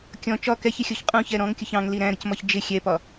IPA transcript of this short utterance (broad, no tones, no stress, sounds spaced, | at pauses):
kʲ ɔ̃ t͡ʃ ɒ k ɛ ç ɪ xʲ ɔ ç qʼ ũ ç ɛ ɾ ɔ̃ ŋ kʲ ʊ ç ɑ̃ ŋ l i ɾ æ̃ ɾ ə c m ɒ ç d͡ʒ ɪ xʲ ɛ p ɒ